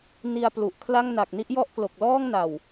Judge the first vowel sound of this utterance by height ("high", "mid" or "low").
high